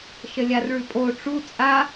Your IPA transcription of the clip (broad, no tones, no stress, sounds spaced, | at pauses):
ʃ ə lʲ a r ɭ ʉ pʼ o ʈ͡ʂ u t͡sʼ a